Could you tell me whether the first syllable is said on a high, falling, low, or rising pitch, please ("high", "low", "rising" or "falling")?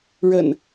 low